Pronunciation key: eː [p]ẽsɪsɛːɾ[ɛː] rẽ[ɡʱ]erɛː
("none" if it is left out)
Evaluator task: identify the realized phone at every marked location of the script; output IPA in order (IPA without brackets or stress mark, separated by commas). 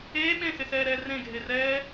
ɓ, ɛː, ɡʱ